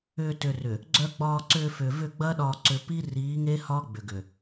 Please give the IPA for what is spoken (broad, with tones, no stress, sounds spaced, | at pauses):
ʏː˨ t ʏ˨ r ʏ˨ | ɡ͡ǀ œ˨ ɡ͡b ɒː˨ ǀ ʏː˨ f ʏː˨ v ʏ˦˨ ɡ͡b ɐː˦ ɗ ɒː˨ ǀ ʏ˨ p i˦ r iː˨˦ ŋ e˦ h ɒ˦ ɡ͡b ʏ˨ ɡ ʏ˨